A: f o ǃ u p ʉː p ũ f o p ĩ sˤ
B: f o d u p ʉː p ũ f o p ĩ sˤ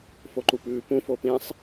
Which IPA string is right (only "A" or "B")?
A